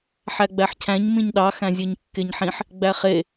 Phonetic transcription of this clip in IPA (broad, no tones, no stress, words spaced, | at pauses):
ħæɡ͡bæħcʰæ̃ɲ mĩɲɗɑ xæ̃zʲøɲkːeɲħĩħ | ɡ͡bæχe